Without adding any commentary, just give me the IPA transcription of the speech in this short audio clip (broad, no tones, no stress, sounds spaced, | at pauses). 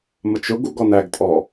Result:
m ə t͡ʃ ʊ ɡ u ɡ ɔ n æ ɡ tʼ ɔ